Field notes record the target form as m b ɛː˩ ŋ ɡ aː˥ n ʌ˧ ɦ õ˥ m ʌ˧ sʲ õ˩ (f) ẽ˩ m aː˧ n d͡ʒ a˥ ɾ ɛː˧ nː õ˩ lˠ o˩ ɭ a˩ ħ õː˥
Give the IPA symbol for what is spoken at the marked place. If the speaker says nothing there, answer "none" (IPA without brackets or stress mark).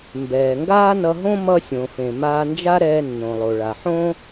f